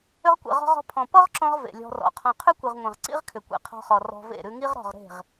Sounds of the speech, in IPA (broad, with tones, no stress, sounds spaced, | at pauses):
ʏ˧ ʁ kʷ ḛ˨ ʁ ɔ̤˧ ʁ ɔ̤˧ pʰ ɔ̃˨ p ɔ˦ ʁ ǁ ɔ̃˧ ʁ v ḛ˨ lʲ ɔ̤˧ r ɔ̰˨ qʰ ɔ̃˧ qʰ ʉ˦ kʷ i˨ ʁ ŋʷ ẽ˨ ʁ ǀ ḭ˦ ʁ kʰ ʏ˨ kʷ ḛ˧ qʰ ɔ̤˧ χ ɔ˨ r ɔ̤˧ v ḛ˦˨ ɾ ʉ˧ ŋ i˦ ʁ ɾ ɔ̤˦˨ ʁ ɾ e̤˦˨ ʁ